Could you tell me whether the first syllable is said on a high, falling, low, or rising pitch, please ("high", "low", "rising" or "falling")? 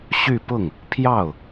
falling